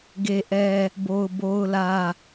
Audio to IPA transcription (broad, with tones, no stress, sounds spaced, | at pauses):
ɡ e˦ ʔ ɛ˦ | b o˦ ʊ̯ b o˦ ʊ̯ l ä˦